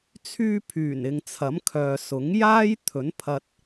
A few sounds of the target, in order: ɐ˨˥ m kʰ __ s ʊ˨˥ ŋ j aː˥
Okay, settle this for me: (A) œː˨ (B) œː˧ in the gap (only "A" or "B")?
A